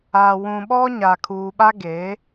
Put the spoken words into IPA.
a˨ wũ˨ɓɔ˦ ɲa˨kʰuː˨ ɓa˦ɡe˨˦

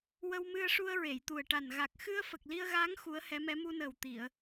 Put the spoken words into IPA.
wə˧wmɨ˧ə̯ʂu˧ə̯ ɹe˨˩˨jt̪u˨˩ə̯ʈa˨˩n ɣa˨˩k̚xɨ˧ə̯ fə˨˩k̚li˧ə̯ɣaː˧˥ŋ xu˧˥ə̯hɛ˧˥mɛ˧˥ mu˧nəː˨˩w t̪i˨˩˨ə̯

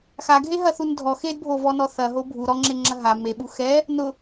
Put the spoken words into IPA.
xaɡʱe ɦɐθundʱɔ xedbʱovɔnɔ θɐɦo bʱu ɾɔŋ͡ǁeŋ͡ǁɐ ɦa meɓu xɛ | nʊ

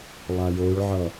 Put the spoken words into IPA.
lˠajoɭʕʌ

